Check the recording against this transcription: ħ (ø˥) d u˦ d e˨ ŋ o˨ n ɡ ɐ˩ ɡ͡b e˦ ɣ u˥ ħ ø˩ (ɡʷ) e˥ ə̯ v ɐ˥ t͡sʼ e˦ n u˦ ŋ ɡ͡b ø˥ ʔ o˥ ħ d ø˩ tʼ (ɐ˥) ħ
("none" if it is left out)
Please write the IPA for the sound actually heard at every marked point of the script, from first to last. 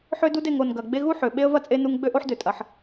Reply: ø˦, ɓ, ɐ˩

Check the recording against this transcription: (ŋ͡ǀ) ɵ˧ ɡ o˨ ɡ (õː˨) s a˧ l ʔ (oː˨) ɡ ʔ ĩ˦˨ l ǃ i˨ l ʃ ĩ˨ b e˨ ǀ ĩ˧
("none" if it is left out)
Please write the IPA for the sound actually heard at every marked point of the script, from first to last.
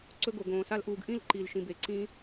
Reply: ǀ, õː˨, uː˨

